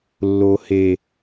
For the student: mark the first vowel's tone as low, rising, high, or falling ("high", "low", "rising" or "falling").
low